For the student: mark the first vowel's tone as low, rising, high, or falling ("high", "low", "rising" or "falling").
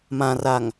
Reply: low